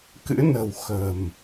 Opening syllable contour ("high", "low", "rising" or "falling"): rising